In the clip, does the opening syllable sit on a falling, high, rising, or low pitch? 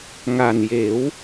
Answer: low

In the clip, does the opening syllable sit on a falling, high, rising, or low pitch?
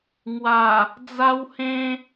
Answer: low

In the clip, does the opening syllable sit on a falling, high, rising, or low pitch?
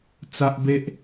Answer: high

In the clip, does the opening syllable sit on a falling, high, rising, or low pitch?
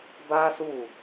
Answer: high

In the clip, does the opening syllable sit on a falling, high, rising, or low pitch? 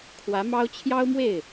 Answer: rising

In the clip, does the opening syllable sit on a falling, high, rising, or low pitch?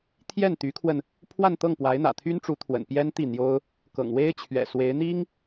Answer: falling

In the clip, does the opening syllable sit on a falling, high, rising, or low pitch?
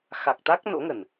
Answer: low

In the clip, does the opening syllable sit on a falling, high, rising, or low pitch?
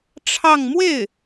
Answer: falling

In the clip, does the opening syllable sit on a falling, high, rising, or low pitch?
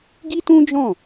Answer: high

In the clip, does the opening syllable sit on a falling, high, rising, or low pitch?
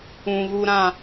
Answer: low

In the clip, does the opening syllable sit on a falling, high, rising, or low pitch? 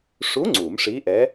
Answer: rising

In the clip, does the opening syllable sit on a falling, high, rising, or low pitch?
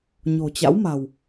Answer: low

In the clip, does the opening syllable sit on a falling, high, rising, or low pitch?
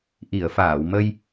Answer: low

